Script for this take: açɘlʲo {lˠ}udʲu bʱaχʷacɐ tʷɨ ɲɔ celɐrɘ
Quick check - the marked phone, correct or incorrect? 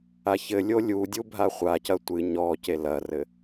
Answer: incorrect